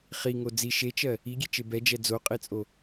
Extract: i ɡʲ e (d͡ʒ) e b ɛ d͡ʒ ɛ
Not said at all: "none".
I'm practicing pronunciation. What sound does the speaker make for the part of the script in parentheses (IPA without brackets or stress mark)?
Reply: t͡ʃ